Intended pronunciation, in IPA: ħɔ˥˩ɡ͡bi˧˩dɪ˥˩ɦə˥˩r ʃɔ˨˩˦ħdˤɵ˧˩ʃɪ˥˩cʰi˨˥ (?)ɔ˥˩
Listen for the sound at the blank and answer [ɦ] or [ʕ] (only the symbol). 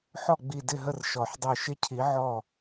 ʕ